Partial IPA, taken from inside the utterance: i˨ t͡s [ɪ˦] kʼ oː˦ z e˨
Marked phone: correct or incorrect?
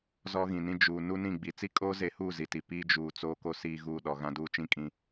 incorrect